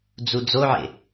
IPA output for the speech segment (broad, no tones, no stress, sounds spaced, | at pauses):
d͡z u d͡z o ʕ ḛ